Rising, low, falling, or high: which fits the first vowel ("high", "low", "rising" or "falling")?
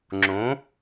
rising